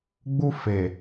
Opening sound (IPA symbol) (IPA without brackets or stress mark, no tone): ɡ͡b